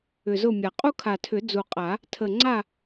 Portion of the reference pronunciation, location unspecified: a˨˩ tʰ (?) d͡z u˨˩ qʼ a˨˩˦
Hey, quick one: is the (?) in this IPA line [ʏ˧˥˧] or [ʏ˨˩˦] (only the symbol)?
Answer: ʏ˨˩˦